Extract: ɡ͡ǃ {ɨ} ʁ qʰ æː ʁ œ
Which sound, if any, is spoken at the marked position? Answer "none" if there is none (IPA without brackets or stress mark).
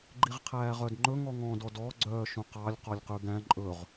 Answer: i